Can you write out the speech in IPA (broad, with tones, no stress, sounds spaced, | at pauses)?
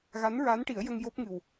ɣ a˧˥ n ɹ a˧˥ n ʈ i˨˩˦ ə̯ j ə˧ ŋ j o˦˥ p̚ ŋ ɨ˨˩ w